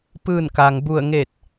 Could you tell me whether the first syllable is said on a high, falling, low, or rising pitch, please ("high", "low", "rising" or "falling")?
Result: falling